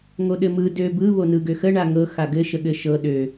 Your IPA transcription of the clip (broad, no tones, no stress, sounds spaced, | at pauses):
ŋ o ɗ ɘ m ɯ d ø b ɯ β o n ɯ ɡ ø x ə ɳ a ŋ ɤ x a ɡ ɘ ʃ ə ɠ ɘ ʃ ɤ ɗ ø